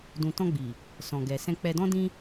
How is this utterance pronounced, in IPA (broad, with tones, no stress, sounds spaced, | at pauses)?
d ũ˨ t ɔ̃˧ ɡ͡b i˨ | s ɔ̃˨ ɡ ɛ˨ s ɛ̃˧ k͡p ɛ˧ d ɔ̃˦ d ĩ˧